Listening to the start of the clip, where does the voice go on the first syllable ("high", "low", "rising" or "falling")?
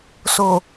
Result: low